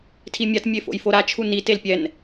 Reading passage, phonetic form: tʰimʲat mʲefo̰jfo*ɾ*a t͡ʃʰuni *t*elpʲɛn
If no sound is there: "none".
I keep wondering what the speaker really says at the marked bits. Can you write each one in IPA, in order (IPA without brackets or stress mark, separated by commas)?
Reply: ɾ, t